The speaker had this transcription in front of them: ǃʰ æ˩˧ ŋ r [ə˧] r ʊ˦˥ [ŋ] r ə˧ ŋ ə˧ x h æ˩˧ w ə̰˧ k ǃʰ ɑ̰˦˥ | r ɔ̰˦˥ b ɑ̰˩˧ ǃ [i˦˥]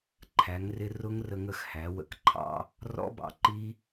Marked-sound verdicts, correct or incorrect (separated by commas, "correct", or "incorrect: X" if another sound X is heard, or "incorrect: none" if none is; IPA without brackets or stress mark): incorrect: ɪ˧, correct, correct